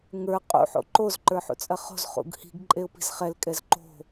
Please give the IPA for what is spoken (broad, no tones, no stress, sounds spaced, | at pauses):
ŋ ə˞ qʼ ṵ ħ o̰ ǃ o z ǃ ə˞ ħ ṵ t͡sʼ ɐ χ o̤ z χ ṵ ɡ h i̤ ɡ ǃʼ e ʊ̯ p i̤ z χ ɛ l kʼ ɛ z ǃ o̤